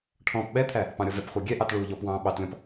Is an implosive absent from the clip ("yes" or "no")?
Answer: no